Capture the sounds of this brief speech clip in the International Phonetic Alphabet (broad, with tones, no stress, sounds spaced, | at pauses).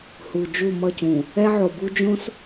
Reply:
h u˨ d͡ʒ u˦˨ m ʌ˦˨ c ũ˨ | ɛ˦ ʕ o˨ b u˦ d͡ʒ õ˦ s